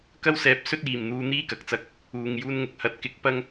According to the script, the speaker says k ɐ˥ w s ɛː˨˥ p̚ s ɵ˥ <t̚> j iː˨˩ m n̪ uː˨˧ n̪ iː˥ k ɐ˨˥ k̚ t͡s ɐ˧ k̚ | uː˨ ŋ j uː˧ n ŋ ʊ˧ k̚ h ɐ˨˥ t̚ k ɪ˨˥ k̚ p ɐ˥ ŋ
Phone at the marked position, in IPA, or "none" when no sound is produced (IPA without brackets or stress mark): t̚